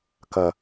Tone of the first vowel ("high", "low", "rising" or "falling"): low